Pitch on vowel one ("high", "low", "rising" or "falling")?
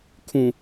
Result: low